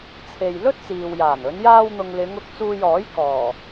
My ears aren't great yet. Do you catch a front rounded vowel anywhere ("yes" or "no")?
no